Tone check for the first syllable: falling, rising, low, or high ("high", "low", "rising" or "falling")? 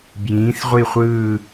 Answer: rising